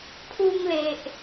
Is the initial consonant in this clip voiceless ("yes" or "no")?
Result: yes